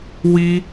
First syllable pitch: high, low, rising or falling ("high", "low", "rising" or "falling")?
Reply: high